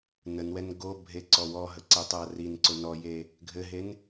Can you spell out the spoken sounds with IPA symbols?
n ə n w ɛ n ɡ o bʱ e ǀ ɔ w ɔ ɦ ə ǀ e tˤ ʉ ɐ̯ r i n ǀ ʊ n ɔ j e | ɡʱ ɘ ɦ e n

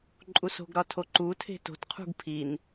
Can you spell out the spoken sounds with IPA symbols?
ǃʼ u s o̤ ɡ ɾ ɒ tʰ o ǃ u tʰ e̤ t o̤ t qʰ ṳ ɡ pʰ i n

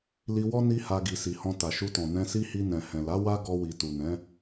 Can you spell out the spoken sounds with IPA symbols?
l i˧ w ɔ˦ n i˦ h a˧ ɡ i˨ s i˨ h ɔ̃˧ t a˨ ʃ u˧ t ɔ̃˨ n ɛ̃˧ s i˦ h i˧ n ɛ̃˨ h ɛ̃˨ l a˨˦ w a˦ ɡ ɔ˧ w i˨ t u˨ n ɛ̃˨˦

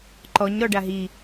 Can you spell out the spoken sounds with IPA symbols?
ǃ ɔ ɲ ɾ ɔ ɖ a ɦ i

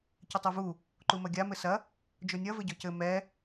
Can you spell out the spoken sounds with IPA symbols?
c ɘ tˤ u v u | ǃ u m ɐ ɡʲ a m ɘ s ɐ | d͡ʒ o nʲ ɐ v ɘ ɟ ɔ c ɘ m ɛ

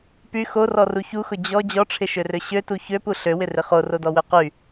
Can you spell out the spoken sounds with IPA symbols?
p y x o r ɔ r u ç u x ʊ d͡ʑ ɔ d͡ʑ ɔ ʈ͡ʂʰ ɪ ʃ ø r ø ɕ ø t u ç ø p u ɬ ø w ɪ r ɪ χ o r o d ɔ w ø q y

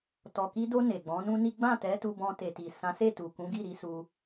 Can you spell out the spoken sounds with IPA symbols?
t ɔ˨ k i˧ d o˧ n e˨ ɡ͡b ɔ̃˨˦ n ũ˦ n i˦ ɡ͡b ã˦˨ t ɛ˨˦ t u˧ b ɔ̃˧ t e˨ t i˨ s ã˨˦ s e˦˨ t u˨ k ũ˨˦ ɡ i˦˨ ɾ i˨˦ s u˧

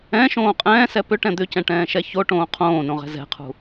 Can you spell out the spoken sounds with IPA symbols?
ɛ̃ ʃ õː qʼ ɛ̃ː s ɛ p ʏ ʈ ɛ̃ d̪ ʏ c ɛ̃ ʈ ɛ̃ː ʃ ɛ ç o ʈ õː qʰ õː n õ ʁ ɛ̤ z ɛ̤ qʰ ṳ

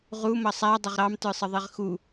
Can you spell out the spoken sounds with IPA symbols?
ʁ u m ʌ sˤ æ dˤ ɪ ʁ ɾ ɑ m t ə˞ sˤ ə ðˤ i ʁ x u

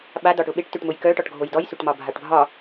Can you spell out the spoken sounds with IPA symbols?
ɓ a d ɒ ʈ ʊ ɓ e ʈ t ø ʈ m ʊ j k œ ʈ ɒ ʈ ɡʱ o j d ɔ j s ø ʈ m ɒ bʱ a ʈ bʱ ɒ

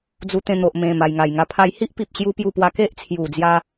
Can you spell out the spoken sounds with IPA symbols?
d͡z u˧ t̪ ẽ˧ n̪ o˨ ʔ m ẽ˨˩ m a˨˩ j ŋ a˨˩ j ŋ a˧ pʰ a˦ j h i˦ ʔ p i˨ p̚ ɕ j u˧ p j u˥˧ p w a˦ k e˦ ʔ t͡sʰ j u˨˩ d͡z j a˧

